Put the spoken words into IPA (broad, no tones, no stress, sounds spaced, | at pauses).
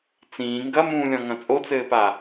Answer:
t͡s ĩː ŋ ɡ ɐ m ũː lʲ ɔ̃ ŋ ɐ̃ t͡sʼ o t͡s ɘː p a